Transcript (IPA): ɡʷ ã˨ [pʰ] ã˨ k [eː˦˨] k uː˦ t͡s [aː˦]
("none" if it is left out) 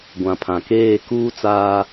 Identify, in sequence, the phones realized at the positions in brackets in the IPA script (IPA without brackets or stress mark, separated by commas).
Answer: pʰ, eː˦˨, aː˦